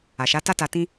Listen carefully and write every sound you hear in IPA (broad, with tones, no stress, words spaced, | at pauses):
a˨ʃa˨˦ta˦ta˧ tĩ˧